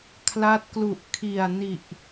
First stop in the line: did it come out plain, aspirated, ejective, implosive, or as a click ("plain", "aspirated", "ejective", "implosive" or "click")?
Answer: aspirated